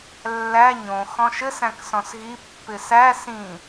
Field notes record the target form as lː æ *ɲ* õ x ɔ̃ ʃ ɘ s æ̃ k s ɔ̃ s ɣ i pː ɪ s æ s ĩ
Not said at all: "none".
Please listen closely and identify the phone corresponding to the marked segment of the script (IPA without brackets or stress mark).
ɲ